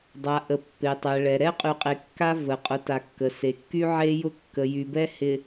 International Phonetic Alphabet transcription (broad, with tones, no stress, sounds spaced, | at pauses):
dˤ a˨ ʔ ə˨ pː e˨ tˤ ɛ˨ ɭ ɛ˨ ɾ ɛ˦ qʼ y˨ qʼ e˨ kː a˦ v ə˨ qʼ ʊ˨˦ t a˨ kː ə˨ s e˨ kː y˦ ʕ e˦ j ʊ˦ kː ə˨ j y˨ b ɛ˦ h ɪ˨